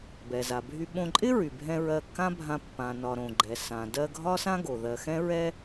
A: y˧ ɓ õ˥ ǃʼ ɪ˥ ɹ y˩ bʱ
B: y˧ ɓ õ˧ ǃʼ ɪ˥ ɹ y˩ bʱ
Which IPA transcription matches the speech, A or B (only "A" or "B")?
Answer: B